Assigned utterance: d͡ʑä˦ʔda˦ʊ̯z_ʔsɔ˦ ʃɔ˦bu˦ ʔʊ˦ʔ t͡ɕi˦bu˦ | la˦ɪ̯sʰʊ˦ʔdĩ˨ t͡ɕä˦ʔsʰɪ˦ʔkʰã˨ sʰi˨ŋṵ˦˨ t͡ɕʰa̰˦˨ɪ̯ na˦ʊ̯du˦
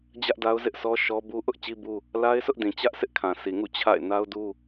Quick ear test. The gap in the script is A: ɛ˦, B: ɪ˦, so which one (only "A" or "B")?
B